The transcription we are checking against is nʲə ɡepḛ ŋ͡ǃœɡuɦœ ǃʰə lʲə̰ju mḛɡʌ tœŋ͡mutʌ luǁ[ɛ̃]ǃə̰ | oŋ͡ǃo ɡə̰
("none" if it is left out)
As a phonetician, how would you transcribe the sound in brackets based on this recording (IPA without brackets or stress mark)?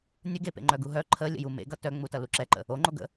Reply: ɛ